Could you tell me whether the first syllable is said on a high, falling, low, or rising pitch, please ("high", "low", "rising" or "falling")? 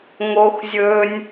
high